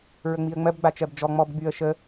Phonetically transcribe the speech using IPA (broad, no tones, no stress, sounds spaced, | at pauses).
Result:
ɹ ə ŋ͡m i ə̯ ŋ͡m ɜ b ɡ͡b a t͡ʃ ɜ b d͡ʒ ɔ ŋ͡m ɔ b ɡ͡b y ə̯ ʃ ə